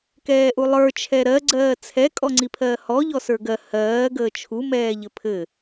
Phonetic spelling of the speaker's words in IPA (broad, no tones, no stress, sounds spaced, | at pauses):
k ɛː ʔ u lˠ ə˞ t͡ʃʰ ɛ ɾ ɜ ɡ͡ǀ ɜː t͡sʰ ɛ kʼ ɔ ŋ͡ǀ i pʰ ɜː h ɔ ʎ ɔ s ə˞ ɡ ɜ h ɜː ɡ əː t͡ʃʰ u m ɛː ʎ ɘ pʰ ɘ